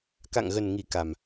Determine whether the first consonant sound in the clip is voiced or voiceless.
voiceless